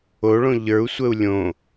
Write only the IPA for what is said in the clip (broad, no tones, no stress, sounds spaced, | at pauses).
o ɭ õ ʎ ə˞ u̯ sʷ ə u̯ lʲ õ